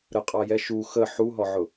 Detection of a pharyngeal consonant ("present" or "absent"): present